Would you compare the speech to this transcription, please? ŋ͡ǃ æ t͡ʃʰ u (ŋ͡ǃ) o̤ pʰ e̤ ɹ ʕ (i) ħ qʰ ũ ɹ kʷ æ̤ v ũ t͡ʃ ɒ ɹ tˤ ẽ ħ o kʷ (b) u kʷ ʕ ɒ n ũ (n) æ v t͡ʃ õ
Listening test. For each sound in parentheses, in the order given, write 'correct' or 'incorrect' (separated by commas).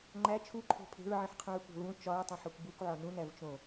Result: incorrect, incorrect, correct, correct